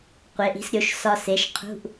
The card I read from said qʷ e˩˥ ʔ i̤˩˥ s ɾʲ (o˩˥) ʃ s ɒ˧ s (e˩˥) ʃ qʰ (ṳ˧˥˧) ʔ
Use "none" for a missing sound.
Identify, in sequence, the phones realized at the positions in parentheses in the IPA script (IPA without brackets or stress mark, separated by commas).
o˩˥, e˩˥, ṳ˧˥˧